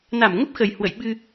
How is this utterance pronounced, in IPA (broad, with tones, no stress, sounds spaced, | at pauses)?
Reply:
n a˧˩ m ŋ ə˦˥ p̚ x ə˨˩ j h w ə̰˧˨ j ɓ ɨ˧